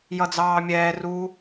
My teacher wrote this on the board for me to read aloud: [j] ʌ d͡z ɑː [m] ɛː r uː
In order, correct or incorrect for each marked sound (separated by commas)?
correct, incorrect